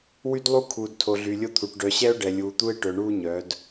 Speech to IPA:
w y˦ d lˠ u˦ kʰ uː˨ d tʰ o˨ ɮ y˨ lʲ o˦ t̪ʰ u˨ ʈ ɖ œ˨ ɕ ɛ˦ ʊ̯ ɖ ɛ˨ lʲ uː˨ t̪ u˦ ɪ̯ ʈ œ˨ ɳ uː˦ ɲ œ˨˦ d

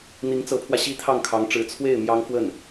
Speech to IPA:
n̪ i˧˥ ŋ t͡s ɤ˧˥ pʰ w ä˧ ɕ i˥ t̪ʰ ɑ˥˩ ŋ kʰ ɑ˧˥ ŋ ʈ͡ʂ ɻ̩˧˥ t͡sʰ w e˥˩ ɪ̯ m j ɑ˥ ŋ f w ə˥˩ n

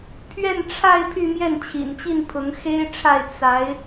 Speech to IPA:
pʰ ɥ ɛ˥˧ n ʈ͡ʂʰ a˥˧ ɪ̯ pʰ y˥˧ m j ɛ˥˩ n t͡ɕʰ ḭ˨˩ n t͡ɕ i˥˩ n pʰ ʊ˧˥ ŋ x e˥ ɪ̯ ʈ͡ʂʰ a˥˩ ɪ̯ t͡s a˧˥ ɪ̯

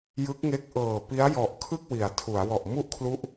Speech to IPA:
j ɯ˦˥ k̚ ŋ e˦˥ k̚ ʔ ɤː˨˩ p i˦˥ a̯ j ɔ˨˩ ʔ kʰ ɯ˥˩ k̚ w i˩˦ a̯ tʰ u˩˦ a̯ w ɔ˨˩ ʔ m u˥˩ ʔ kʰ l u˦˥ ʔ

